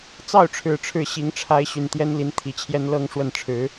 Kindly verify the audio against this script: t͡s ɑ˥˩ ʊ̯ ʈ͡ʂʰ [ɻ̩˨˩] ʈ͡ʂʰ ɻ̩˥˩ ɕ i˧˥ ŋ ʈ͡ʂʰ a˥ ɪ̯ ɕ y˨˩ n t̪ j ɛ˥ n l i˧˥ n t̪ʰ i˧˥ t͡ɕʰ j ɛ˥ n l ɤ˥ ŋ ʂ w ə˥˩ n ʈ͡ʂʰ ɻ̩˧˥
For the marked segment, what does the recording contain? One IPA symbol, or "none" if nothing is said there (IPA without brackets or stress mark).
ɻ̩˨˩